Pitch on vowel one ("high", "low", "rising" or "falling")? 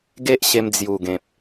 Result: high